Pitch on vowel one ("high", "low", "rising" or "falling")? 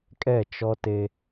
falling